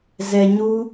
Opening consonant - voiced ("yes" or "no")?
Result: yes